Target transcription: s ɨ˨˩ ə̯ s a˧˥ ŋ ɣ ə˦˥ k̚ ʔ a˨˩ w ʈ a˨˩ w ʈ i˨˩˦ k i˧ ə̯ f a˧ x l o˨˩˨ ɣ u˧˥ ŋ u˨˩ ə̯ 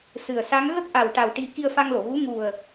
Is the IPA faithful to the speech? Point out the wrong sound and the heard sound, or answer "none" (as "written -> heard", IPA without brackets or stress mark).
x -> ŋ